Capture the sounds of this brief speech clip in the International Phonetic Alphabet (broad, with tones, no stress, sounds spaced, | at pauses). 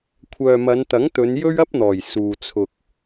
kʷʰ œː˨ m ɐ˨˧ n t̪ ɐ˨˥ ŋ t̪ ɵ˨˧ n j ɵ˥ ɥ ɐ˥ p̚ n̪ ɔː˨˩ j s uː˨ t͡sʰ ʊ˨ k̚